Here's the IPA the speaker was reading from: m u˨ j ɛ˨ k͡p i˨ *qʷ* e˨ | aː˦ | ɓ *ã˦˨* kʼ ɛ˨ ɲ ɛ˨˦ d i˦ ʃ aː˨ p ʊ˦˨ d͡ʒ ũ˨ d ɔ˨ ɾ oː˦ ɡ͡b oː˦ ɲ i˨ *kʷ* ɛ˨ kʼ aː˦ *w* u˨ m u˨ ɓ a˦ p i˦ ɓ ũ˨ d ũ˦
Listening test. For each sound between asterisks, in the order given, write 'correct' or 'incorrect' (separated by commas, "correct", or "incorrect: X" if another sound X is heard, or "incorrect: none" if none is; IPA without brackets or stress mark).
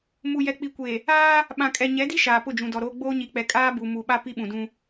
incorrect: kʷ, incorrect: ã˨, incorrect: k͡p, incorrect: b